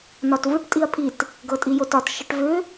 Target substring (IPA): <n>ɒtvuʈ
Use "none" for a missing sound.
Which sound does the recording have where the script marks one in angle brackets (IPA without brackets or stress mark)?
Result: n